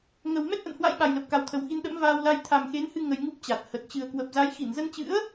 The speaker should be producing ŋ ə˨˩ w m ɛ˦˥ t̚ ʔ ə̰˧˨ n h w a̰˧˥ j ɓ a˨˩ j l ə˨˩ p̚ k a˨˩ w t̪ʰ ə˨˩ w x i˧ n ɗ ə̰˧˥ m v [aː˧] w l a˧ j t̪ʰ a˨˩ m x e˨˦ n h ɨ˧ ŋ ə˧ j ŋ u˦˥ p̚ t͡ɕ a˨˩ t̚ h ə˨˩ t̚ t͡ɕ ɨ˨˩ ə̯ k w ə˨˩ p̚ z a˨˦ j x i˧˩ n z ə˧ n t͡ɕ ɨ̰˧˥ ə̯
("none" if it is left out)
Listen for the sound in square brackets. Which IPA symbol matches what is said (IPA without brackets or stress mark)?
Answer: aː˧